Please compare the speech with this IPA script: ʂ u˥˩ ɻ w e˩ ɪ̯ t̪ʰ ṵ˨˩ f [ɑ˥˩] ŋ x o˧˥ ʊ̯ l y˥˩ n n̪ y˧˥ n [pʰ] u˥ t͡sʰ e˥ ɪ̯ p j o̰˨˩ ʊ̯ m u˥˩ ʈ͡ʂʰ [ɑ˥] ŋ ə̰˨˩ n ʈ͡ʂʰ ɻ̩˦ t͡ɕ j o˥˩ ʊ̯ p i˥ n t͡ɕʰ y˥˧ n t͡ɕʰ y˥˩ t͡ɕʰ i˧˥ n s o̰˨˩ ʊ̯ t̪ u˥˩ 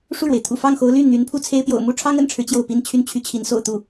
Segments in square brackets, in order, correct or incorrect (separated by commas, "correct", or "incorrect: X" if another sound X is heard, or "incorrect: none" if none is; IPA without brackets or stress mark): correct, correct, correct